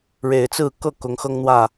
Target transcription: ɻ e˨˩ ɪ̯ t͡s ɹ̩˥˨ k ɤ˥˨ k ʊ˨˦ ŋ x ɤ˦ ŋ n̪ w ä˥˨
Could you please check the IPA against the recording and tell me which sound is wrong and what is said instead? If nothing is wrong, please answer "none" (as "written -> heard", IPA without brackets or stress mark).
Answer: none